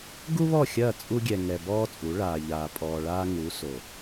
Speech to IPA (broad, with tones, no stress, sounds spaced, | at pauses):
ɡ u˦ β ɔ˦˨ xʲ ɐː˦˨ t͡sʼ u˦ ɡʲ ɛ˨ ŋ ɛ˨ b ɔː˦ t͡sʼ u˨˦ ɭ aː˨ ʎ aː˨ pʼ ɔː˨ ɭ aː˦ ŋ u˨˦ s o˨